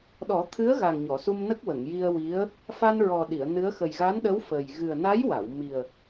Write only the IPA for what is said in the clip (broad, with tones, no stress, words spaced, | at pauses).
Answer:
ɗɔ˨˩˦t̪ʰɨ˧˥ə̯ɣa˨˩ŋ ɲɔ˨˩˨su˧mnə˦˥k̚ wə˨˩˨ŋji˧ə̯wi˧˥ə̯ | fa˧nɹɔ˨˩ɗi˨˩˨ə̯ nɨ˧˥ə̯ xə˨˩jɣa˧˥nɗə˧˥w fə˨˩j ɣɨ˨˩ə̯na˧˥jwa˨˩˨w mi˨˩ə̯